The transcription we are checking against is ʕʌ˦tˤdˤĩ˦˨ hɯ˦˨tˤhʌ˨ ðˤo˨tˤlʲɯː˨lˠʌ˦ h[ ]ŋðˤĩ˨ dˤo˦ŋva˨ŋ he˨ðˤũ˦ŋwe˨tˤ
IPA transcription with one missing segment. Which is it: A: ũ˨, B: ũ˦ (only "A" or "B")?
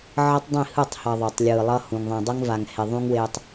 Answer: A